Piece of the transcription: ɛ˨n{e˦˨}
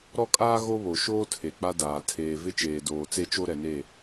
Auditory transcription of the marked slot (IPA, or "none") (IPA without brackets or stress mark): e˦˨